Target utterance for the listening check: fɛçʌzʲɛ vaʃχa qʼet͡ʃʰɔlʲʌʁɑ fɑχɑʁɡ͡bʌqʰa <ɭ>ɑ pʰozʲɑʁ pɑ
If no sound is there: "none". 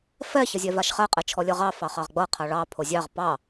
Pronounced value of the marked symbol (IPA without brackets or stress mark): ɭ